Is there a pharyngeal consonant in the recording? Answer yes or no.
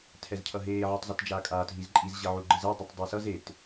yes